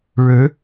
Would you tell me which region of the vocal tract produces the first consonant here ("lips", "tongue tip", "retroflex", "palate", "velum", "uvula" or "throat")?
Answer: retroflex